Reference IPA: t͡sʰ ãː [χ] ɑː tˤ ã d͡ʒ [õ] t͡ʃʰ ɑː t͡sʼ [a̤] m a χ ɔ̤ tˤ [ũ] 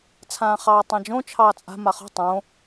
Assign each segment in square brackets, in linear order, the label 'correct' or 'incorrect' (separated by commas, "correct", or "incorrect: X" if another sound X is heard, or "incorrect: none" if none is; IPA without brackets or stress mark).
correct, correct, correct, incorrect: õ